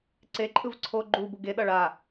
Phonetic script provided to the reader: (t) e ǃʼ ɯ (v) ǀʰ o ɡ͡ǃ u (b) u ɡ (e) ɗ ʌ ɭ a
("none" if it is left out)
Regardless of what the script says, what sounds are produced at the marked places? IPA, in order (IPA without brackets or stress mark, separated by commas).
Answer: ǀ, v, b, e